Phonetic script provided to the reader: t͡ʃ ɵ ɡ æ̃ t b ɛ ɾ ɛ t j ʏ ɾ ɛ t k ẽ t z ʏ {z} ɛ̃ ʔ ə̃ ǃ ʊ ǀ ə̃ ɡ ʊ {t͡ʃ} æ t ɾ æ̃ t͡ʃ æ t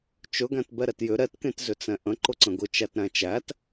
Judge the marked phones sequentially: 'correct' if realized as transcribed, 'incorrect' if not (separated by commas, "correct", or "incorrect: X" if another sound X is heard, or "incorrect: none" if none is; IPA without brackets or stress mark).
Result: incorrect: t͡s, correct